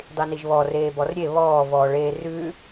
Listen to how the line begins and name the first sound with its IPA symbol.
dˤ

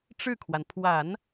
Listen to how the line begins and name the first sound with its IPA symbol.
ʈ͡ʂ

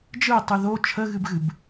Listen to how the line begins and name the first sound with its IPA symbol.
d͡ʒ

